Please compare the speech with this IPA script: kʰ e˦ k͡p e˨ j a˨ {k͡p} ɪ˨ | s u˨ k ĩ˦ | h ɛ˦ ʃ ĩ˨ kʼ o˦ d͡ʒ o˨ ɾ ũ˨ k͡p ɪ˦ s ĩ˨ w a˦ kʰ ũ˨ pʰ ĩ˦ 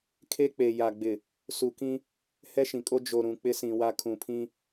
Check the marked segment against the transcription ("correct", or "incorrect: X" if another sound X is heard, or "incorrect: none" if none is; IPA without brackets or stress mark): incorrect: ɡ͡b